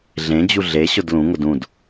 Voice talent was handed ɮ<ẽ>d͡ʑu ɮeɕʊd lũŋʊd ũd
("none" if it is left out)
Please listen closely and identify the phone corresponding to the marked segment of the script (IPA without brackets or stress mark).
ẽ